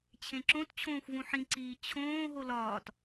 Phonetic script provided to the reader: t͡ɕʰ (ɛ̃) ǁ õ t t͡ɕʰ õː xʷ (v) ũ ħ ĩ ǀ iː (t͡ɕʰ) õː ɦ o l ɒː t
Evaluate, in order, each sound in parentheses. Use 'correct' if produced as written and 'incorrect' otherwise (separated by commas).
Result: incorrect, correct, correct